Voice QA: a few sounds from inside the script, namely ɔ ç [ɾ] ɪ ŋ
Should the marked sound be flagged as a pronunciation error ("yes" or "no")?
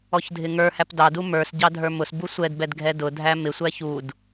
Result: yes